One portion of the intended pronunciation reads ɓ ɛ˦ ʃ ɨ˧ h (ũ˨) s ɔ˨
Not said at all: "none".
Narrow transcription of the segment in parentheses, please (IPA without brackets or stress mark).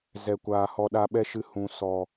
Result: ũ˨